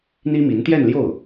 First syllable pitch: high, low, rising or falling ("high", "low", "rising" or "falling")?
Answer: high